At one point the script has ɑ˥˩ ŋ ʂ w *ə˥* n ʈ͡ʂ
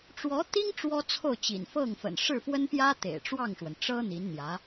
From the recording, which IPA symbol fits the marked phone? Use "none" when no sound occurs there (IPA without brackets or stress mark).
ə˩